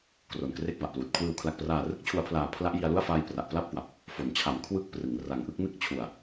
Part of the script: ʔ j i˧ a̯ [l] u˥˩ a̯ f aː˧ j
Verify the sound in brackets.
correct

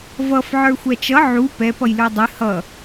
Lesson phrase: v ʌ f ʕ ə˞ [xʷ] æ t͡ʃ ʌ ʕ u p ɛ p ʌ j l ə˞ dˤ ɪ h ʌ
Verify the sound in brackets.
correct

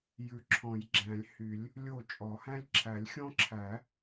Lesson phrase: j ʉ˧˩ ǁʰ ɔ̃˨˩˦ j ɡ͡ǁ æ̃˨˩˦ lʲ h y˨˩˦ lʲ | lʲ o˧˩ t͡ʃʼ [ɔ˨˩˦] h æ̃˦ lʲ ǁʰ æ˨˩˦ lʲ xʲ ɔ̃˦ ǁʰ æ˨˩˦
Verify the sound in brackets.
correct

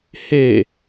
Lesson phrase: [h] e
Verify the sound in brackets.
correct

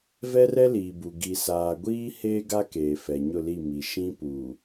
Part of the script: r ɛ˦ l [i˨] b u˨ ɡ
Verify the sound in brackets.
incorrect: iː˨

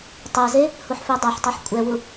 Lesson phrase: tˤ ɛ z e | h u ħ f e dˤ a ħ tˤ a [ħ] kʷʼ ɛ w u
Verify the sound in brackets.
correct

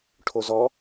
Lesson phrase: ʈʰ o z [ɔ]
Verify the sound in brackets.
correct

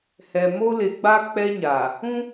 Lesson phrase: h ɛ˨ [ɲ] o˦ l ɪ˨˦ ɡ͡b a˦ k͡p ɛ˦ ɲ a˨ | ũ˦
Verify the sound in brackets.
incorrect: m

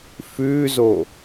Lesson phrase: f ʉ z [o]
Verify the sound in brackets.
correct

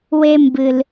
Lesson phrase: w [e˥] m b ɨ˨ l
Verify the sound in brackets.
correct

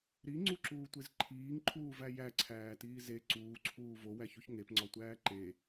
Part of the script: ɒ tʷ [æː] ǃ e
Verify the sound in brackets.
correct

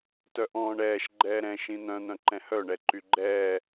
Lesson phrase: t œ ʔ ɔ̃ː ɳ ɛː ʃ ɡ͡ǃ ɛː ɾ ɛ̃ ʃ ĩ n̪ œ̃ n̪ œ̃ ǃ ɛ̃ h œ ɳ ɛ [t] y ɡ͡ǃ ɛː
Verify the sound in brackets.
incorrect: ǃ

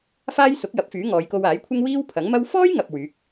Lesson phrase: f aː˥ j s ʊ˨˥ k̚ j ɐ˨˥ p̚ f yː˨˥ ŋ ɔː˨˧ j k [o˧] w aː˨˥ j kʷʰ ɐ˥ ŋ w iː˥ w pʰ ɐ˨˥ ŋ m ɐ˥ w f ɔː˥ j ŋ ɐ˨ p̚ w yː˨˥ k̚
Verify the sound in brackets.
correct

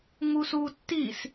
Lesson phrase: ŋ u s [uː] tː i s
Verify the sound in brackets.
correct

